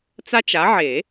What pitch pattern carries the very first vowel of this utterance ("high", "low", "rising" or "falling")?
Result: high